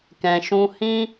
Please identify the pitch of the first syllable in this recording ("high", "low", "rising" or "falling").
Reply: low